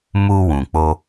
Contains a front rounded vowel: no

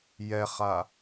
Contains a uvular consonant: yes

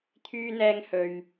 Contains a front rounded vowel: yes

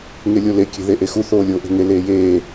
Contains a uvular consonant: no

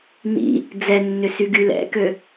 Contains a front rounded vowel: yes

